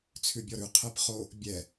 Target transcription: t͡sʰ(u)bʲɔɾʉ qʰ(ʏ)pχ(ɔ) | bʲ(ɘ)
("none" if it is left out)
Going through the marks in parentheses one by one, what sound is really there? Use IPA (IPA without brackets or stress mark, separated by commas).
ʉ, ɛ, o, ɛ